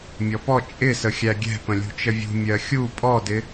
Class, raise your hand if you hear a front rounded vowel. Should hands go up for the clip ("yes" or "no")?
no